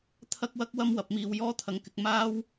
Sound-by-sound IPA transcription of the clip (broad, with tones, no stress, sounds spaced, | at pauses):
t̪ʰ ɐ˥ k̚ w ɐ˥ k̚ w ɐ˥ m w ɐ˨ p̚ m iː˨ w j ɔː˥ t̪ʰ ɐ˨ ŋ k ɪ˧ k̚ m aː˥ w